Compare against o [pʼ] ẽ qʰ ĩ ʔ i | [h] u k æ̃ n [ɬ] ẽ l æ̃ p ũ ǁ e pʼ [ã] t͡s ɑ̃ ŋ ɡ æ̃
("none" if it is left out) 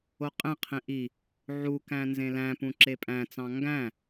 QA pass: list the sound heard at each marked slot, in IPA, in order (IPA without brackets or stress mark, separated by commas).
qʼ, ʕ, z, æ̃